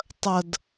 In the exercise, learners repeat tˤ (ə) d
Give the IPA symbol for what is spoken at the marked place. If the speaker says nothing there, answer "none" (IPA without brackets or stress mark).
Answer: ə